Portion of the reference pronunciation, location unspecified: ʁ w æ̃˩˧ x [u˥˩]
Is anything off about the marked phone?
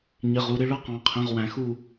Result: no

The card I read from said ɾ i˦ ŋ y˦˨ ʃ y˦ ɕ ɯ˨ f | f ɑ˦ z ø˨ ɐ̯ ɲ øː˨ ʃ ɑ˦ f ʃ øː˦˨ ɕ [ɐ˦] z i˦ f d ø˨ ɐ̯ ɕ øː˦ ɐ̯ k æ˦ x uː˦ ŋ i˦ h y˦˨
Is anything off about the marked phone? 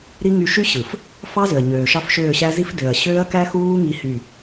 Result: yes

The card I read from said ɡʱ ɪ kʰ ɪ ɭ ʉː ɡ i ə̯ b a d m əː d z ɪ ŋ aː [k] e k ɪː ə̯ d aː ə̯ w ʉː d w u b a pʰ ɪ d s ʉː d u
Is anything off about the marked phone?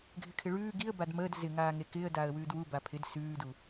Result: yes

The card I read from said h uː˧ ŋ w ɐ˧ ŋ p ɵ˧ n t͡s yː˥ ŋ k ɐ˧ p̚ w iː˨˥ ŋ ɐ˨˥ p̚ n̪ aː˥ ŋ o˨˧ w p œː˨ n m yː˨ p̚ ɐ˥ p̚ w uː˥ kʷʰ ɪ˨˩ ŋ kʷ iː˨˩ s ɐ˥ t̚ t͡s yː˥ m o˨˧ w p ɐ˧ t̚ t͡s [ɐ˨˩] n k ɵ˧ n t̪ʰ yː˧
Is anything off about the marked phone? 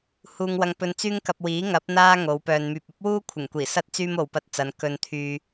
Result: yes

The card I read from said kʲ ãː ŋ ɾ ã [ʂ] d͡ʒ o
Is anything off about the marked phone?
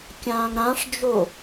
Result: no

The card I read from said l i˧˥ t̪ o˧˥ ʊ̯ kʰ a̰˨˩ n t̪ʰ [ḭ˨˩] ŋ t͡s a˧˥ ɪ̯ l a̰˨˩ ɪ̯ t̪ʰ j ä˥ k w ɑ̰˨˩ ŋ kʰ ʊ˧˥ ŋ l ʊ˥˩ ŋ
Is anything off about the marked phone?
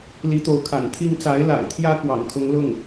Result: yes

